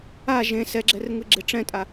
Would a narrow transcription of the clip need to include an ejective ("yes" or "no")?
yes